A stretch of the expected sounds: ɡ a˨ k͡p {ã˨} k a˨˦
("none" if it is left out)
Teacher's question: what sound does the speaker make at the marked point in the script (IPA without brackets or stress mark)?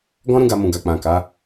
ã˨